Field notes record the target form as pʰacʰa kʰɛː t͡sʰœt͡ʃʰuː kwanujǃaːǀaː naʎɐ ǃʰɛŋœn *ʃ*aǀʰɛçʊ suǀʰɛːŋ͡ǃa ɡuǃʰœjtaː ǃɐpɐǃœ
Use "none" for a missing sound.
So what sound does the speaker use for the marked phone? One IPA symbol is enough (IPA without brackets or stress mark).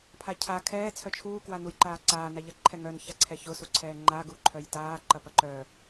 ç